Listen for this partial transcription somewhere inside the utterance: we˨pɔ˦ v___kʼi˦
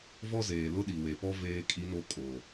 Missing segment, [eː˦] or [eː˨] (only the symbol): eː˦